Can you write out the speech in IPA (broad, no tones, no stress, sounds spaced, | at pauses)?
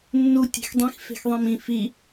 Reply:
nː u tʲ e̤ x dˤ ĩ x f e̤ x ðˤ ĩ m ĩ f i